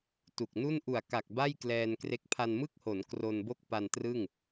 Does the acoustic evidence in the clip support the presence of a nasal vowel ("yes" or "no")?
no